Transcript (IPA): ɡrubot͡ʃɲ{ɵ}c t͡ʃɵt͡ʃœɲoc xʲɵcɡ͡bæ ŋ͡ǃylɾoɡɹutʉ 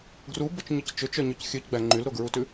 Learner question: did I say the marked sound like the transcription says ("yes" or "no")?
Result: no